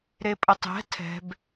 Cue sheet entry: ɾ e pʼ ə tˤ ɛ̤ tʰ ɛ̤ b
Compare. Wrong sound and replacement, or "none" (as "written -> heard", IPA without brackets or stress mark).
none